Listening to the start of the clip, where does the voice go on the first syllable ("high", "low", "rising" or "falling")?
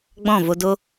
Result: falling